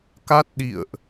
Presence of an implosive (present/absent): present